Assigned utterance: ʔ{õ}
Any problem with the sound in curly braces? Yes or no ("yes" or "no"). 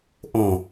no